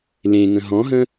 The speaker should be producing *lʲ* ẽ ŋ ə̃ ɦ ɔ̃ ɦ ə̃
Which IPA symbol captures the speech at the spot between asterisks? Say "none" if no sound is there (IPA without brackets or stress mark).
l